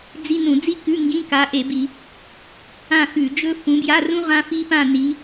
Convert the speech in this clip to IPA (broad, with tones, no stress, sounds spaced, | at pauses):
d͡z i˧˥˧ n ũ˧˩˧ d͡z i˥ k ʉ˧˥˧ ŋ ɡ ĩ˧˥˧ k a˨˦ ʔ e˧˩˧ b i˧˩˧ | ã˥˧ x ʉ˧˩˧ d͡ʒ ɵ˥ f ũ˨˦ b j a˧˥˧ r ũ˥ ʁ ã˥ f i˥ p ã˥˧ n i˨˦